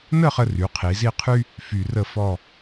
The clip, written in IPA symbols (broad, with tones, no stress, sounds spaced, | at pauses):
n ə˥˧ χ ə˧ r y˩˧ qʰ i˩˧ z i˥˧ qʰ y˥ | f y˧ r ə˥˧ f ɔ˥˧